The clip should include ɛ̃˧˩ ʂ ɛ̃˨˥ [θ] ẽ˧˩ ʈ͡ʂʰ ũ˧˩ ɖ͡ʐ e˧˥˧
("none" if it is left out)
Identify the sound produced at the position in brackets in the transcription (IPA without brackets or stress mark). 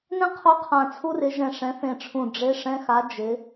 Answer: θ